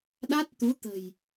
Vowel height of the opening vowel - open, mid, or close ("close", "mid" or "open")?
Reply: open